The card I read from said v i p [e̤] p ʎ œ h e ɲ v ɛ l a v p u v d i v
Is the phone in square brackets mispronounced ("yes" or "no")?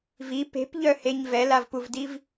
no